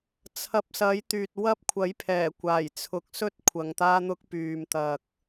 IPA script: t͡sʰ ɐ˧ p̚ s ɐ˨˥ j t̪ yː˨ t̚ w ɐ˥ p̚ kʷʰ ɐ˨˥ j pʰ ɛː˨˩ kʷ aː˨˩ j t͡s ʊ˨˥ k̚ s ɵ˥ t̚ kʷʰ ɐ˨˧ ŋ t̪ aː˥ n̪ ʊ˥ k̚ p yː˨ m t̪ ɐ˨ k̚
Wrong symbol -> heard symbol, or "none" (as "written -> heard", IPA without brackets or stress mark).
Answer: t͡s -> t͡sʰ